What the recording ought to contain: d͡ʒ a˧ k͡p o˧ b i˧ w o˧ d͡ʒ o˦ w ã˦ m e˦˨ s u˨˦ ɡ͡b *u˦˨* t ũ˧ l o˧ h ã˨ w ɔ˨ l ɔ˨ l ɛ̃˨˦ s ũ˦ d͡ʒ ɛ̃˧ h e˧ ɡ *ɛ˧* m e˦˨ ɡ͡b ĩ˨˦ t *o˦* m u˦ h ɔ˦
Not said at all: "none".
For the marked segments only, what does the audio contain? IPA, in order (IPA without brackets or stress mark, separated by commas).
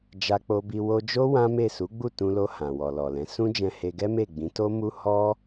u˦˨, ɛ˦, o˦